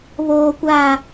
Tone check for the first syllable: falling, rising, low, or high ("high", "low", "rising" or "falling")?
high